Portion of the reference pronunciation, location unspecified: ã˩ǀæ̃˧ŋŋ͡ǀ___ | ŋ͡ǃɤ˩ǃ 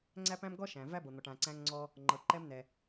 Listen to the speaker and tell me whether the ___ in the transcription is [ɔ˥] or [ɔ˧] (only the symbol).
ɔ˧